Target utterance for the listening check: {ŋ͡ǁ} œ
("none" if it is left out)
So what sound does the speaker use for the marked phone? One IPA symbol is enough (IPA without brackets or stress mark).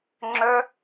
ŋ͡ǁ